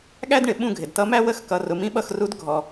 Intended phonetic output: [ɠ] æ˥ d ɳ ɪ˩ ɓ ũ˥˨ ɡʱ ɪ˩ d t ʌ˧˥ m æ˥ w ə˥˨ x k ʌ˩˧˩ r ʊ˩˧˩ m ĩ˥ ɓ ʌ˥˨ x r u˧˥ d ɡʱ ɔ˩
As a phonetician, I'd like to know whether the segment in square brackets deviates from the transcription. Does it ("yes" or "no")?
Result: no